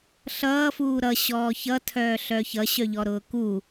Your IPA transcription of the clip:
ɬ ʌː f uː ɾ ʌ ɕ ɔː ç ʌ tʰ œː ɬ œ ç ʌ ɕ œ ʎ ɔ ɾ ʊː k u

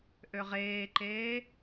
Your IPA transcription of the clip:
ʔ ø ʁ eː ǃ eː

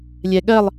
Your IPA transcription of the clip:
lʲ ɛ ɠ ɜ lˠ

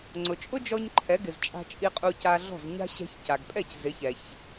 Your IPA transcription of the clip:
ŋ͡ǀ ʊ˩ t͡ʃʼ ʊ˥ d͡ʒ ɔ˧ ɲ ǃʰ ɛ˩˥ ɡ ɪ˩ z t͡ʃʼ a̤˧ t͡ʃʼ i˧ qʼ u˧ c a˧ ɮ ɔ̤˥˩ z ɲ a̤˥ ɕ ɛ̤˧ ç c a˩ ɡ pʼ ɛ˥˩ c z ɪ˩˥ ç ɛ˩ ç

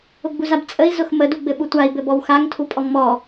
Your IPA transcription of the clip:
ʊ ɡ͡b u z a b t͡sʼ ə i̯ z ʊ x m ə d u ɡ͡b ɘ ɓ u tʷ a i̯ b ɘ b ɔ w x a ŋ tʰ u pʼ ɔ ŋ m ɔ

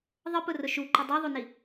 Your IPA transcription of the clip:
ðˤ ə p ʊ r ʊ ʃ u ǃ ʊ dˤ i ðˤ u n i

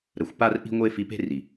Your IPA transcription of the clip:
ɾ ə˨ xʷ p a˦ r ʔ i̤˦ ŋʷ e˦ f i˧ p e̤˦ r i˨

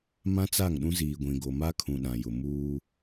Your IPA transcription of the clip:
m ã˦ t͡s a˦˨ ŋ ɗ ũ˦ z iː˨ ɡʷ ĩ˨ ɡ o˨ m a˦ kʰ ũ˨ ɗ ã˨ j ʊ˨ m uː˦

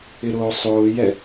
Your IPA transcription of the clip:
ɪ ɾ ʊː sˤ ʊː j ɛ

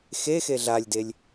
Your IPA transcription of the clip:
x e x e ɮ a lʲ d e lʲ

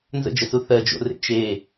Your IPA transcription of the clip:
n z ə̰ d͡ʒ ə s u θ ɜ d͡ʒ o̰ r ḛ t͡ʃ e

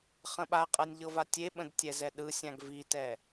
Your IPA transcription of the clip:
χ ə̃ ɓ a qʼ ɤ nʲ ʎ ɤ v a tʲ e ɓ ə̃ d tʲ ɛ z ɛ ɗ ɯ sʲ ã ɡ v i t ɛ

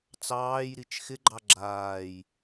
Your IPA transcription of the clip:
t͡s ɑː j ɾ i t͡ʃ x ɪ ɡ͡ǃ ɑ ɡ͡ǁ aː j

